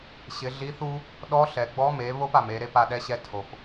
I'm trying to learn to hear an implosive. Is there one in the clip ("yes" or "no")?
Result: yes